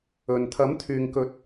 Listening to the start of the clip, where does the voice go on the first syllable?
low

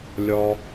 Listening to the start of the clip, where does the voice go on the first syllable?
high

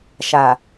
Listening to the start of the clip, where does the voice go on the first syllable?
low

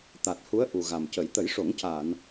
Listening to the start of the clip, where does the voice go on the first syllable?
low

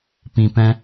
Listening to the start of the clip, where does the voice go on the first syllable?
low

